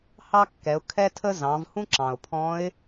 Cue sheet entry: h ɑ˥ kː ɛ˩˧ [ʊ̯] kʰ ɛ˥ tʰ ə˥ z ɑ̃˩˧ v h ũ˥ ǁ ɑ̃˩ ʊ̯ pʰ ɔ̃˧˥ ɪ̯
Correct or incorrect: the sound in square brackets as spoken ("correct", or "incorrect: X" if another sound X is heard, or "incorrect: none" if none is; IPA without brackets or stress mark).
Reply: correct